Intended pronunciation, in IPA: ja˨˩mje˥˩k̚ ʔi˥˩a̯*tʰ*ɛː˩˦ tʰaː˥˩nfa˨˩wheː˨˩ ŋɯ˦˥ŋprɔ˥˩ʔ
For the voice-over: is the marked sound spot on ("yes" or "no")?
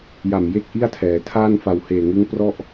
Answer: yes